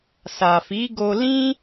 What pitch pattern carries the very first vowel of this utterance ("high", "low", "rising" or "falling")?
low